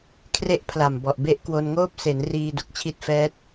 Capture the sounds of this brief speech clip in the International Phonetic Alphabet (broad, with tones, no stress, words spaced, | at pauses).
kʰre˦˥ʔ pʰla˨˩mbɔ˨˩ʔ be˥˩ʔ kwo˧nŋoː˥˩p̚ se˩˦n riː˧ du˨˩k̚t͡ɕʰi˦˥t̚fɛː˦˥t̚